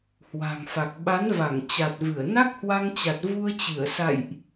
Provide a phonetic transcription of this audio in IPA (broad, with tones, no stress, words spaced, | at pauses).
hwa̤˨˩ŋfa˨˩k̚ ɓa˨˦nva˧˩ŋ t͡ɕa˨˩t̚vɨ˧˩ə̯ na˦˥k̚hwa˧ŋt͡ɕa˨˩t̚ vu˧ə̯t͡ɕɨ˧˩ə̯sa̰˧˨jʔ